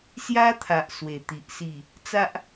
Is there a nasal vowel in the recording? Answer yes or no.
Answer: no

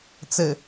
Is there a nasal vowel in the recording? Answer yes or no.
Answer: no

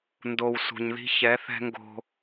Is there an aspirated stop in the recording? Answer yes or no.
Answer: no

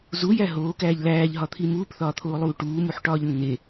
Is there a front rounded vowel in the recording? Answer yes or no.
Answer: no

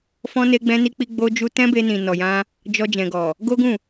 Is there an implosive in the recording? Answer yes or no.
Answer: no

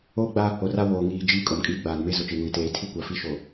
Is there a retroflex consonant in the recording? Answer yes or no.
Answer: no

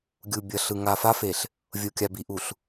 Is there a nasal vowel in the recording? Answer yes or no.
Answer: no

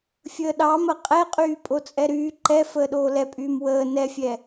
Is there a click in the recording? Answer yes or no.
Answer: yes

